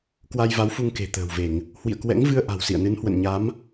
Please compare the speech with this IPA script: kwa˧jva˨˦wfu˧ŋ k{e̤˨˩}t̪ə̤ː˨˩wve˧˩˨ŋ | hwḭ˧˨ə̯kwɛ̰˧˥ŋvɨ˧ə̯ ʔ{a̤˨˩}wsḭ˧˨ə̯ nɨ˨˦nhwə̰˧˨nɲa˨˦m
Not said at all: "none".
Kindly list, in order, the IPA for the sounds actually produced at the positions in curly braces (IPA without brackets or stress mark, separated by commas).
e̤˨˩, a̤˨˩